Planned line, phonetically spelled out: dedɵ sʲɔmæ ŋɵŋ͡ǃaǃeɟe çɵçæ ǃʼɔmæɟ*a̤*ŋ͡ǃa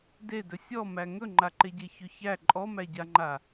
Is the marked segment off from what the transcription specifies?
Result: yes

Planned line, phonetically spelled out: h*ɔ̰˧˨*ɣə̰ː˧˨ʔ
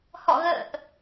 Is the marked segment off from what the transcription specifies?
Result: no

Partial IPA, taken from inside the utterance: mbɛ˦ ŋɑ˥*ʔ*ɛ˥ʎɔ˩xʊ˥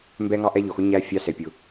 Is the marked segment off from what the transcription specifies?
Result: no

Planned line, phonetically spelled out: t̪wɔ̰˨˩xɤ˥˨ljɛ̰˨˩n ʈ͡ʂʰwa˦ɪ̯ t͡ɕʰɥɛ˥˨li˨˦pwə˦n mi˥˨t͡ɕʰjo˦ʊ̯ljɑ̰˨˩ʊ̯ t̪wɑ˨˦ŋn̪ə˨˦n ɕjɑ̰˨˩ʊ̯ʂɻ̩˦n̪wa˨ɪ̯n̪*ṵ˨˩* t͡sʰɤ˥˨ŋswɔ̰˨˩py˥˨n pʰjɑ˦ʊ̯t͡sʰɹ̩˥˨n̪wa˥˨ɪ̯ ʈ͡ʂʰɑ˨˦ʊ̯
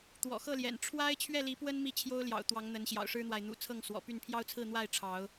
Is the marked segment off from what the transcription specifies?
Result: no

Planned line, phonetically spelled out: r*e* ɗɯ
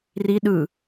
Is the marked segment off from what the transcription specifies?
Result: yes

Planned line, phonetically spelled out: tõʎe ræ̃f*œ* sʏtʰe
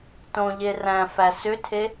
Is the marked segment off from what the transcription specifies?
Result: yes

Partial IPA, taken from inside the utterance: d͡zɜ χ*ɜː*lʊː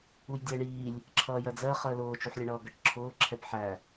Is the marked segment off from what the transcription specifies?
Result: yes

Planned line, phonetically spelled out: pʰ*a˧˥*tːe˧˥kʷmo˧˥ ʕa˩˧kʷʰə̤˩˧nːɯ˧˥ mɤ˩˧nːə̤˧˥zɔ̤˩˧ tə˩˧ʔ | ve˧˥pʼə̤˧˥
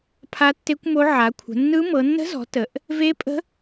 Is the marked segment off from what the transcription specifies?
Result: no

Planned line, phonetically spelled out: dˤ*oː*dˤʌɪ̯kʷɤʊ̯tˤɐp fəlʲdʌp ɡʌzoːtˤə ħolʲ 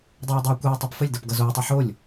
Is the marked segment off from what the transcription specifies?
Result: no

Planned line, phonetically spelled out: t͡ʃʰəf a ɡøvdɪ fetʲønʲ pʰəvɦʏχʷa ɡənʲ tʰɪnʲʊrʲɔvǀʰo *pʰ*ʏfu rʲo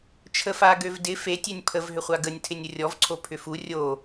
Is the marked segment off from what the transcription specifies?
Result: no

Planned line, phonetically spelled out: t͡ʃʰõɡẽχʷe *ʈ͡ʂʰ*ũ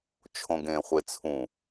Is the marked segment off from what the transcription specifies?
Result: yes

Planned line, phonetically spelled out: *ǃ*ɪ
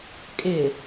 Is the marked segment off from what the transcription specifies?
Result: yes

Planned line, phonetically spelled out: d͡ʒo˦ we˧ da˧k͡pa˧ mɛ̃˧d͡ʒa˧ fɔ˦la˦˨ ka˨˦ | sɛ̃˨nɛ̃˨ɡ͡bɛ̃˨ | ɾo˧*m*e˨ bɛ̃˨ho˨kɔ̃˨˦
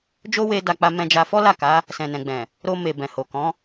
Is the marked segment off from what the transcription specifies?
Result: no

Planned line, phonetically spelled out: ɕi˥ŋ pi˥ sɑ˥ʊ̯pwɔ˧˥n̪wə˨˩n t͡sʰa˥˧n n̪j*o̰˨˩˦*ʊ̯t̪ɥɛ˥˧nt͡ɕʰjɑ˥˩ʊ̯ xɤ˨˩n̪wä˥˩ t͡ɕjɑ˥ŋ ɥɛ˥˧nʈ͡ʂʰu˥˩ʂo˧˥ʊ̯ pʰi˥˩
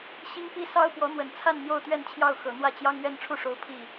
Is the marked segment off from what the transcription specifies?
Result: yes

